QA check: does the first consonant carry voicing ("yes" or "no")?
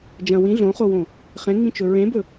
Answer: yes